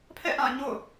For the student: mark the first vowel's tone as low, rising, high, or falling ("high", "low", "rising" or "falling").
falling